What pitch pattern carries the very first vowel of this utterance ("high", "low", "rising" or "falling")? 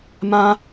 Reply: high